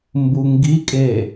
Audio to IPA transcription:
m b u ŋ ɡ i kʼ e

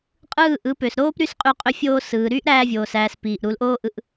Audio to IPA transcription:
qʼ ɯː˦˨ ʔ ɯ˨˦ p ø˨ s ɾ oː˦ p ɾ y˦ s qʼ y˧ qʼ ø˧ fʲ oː˧ s ɯː˨ ɾ yː˦ ʔ ɾ æː˧ vʲ oː˨ s æː˨ s p iː˨ ʔ ɾ u˨˦ l ʔ oː˦ ʔ ɯ˧ ʔ

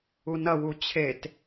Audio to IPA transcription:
u n ɐ w u t͡ɕʰ e t

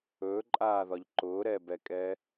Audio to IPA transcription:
ɵː ǃʼ aː ð ɒ ʎ ǃ ʊː ɾ ɛ b ɛ kʼ ɛː

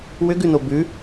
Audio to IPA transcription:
w ʏ ɡ ʉ n o b ʉ

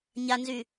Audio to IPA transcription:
ɲ a n z y

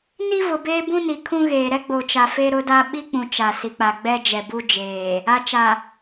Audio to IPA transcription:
n i˦ v ʊ˨ b eː˦ b ũ˦ n i˨ kʰ ũ˦ ɣ eː˨ ɾ ɛ˦ ɡ͡b o˨ t͡ʃ a˨ f e˦ ɾ ʊ˦ d a˦ ɓ i˦ k͡p ũ˨ t͡ʃ a˨ s i˨ k͡p a˨ ɡ͡b ɛ˦ d͡ʒ ɛ˨ b u˦ d͡ʒ eː˨ | a˨ t͡ʃ a˨

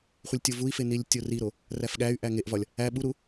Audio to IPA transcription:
χʷ i lʲ tʲ o v u i̯ f e n i lʲ tʲ o r i ɾ o | r æ f ɠ æ y̯ ʔ æ ŋ e ʔ v ɒ lʲ | æ ɓ u ɾ u

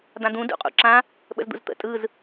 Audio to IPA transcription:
d̪ ã d̪ ũ d ṵ qʼ ṵ ǁ ã | ɓ ə̰ z d̪ ṵ z t̪ ə̰ tʼ ɯ z

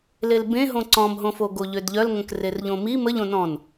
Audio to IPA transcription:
l e l b ẽ ɦ õ ǀ ɔ̃ m ɦ õ f o ɡ o ʎ ø d ʎ œ l ŋ ə̃ k r e r ʎ õ m i m ə ʎ õ n ɔ̃ n

